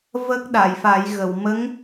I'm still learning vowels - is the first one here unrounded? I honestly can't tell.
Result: yes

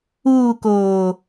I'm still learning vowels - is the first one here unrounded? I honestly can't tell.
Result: no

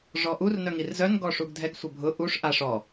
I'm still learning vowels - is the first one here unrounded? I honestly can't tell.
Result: no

